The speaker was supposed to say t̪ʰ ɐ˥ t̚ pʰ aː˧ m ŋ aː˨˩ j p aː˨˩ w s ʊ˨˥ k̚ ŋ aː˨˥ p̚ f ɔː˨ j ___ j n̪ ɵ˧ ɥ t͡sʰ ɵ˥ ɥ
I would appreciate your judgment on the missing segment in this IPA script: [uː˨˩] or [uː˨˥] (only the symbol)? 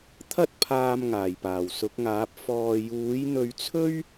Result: uː˨˥